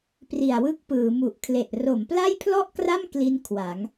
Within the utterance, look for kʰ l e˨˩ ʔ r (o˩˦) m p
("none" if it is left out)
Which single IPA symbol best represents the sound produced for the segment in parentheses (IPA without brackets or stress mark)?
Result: o˩˦